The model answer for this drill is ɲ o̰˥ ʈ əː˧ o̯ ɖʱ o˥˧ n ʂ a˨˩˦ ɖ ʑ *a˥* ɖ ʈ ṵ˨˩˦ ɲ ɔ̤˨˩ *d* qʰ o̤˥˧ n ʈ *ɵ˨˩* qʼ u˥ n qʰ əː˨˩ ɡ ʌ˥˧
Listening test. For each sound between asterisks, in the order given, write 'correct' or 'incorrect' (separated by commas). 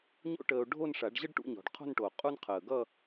incorrect, incorrect, incorrect